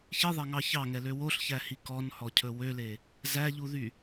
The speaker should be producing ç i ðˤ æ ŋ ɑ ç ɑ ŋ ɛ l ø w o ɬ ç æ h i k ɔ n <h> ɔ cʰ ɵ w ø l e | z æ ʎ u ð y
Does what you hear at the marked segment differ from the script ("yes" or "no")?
no